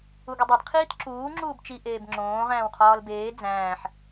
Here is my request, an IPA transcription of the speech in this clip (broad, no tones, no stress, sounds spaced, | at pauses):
u ɡ u dˤ i d qʰ iː t ǁ uː ŋ͡ǁ uː b t͡ʃ i ʔ eː b ŋ͡ǁ õː ʁ æ̃ː w qʰ ɒː l b eː d͡z æ̃ː ħ